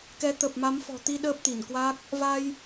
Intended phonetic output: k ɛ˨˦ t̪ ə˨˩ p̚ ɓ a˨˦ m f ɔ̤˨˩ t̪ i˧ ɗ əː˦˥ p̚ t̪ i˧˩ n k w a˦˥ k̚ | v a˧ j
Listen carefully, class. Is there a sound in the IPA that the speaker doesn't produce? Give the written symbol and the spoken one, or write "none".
ɓ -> m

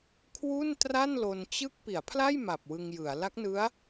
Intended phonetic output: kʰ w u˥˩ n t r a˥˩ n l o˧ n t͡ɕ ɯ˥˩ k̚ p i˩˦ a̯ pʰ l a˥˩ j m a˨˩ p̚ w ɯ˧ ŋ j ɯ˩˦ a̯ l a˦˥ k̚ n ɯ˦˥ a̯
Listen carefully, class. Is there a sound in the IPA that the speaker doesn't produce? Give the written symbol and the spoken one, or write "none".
none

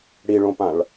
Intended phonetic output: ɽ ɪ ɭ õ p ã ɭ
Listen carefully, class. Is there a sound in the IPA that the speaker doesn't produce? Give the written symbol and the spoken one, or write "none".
ɪ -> i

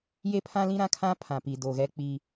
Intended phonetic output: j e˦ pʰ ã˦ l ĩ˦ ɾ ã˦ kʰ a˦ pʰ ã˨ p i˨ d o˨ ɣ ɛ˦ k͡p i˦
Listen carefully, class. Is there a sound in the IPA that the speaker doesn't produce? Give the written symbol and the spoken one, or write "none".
a˦ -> ã˦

